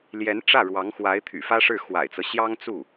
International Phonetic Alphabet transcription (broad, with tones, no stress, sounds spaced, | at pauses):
l j ɛ˧˥ n ʈ͡ʂ ä˥˩ ɻ w ɑ˧˥ ŋ x w a˧˥ ɪ̯ t̪ʰ y̰˨˩ f ä˥ ʂ ɻ̩˥˩ x w a̰˨˩ ɪ̯ t͡s ɤ˦ ɕ j ɑ˥ ŋ t͡s u˥˩